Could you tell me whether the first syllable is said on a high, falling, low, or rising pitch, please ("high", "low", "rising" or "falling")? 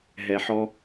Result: low